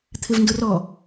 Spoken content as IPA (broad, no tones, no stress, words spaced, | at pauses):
t̪ʰɪvndʊrɔ